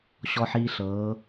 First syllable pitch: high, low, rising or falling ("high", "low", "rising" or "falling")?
low